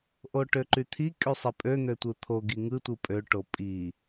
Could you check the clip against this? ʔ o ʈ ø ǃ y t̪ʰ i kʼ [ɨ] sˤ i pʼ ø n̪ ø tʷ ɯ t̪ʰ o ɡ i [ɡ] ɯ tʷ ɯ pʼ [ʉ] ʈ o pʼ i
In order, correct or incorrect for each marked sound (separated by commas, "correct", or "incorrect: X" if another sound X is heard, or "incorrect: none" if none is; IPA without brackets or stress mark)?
incorrect: y, incorrect: ŋ, incorrect: ø